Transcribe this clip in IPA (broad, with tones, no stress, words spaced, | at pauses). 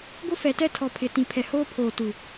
ɡʷɪ˦fɛ˨tɛ˦tʰɔ˨ pʰɪ˨tĩ˨ pʰɛ˨hoː˦ pʰoː˨tu˨